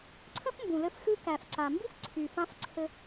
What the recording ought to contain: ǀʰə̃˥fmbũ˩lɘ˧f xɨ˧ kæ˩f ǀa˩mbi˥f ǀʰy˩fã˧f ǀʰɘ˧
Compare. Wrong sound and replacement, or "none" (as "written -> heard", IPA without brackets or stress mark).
none